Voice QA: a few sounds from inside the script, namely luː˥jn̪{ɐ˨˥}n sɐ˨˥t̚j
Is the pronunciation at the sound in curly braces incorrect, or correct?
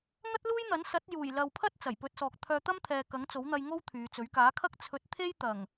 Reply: correct